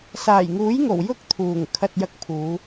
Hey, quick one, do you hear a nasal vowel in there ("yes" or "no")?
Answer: no